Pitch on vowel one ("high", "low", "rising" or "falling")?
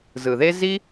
low